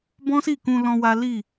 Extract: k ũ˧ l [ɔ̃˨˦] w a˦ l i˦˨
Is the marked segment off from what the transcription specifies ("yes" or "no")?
yes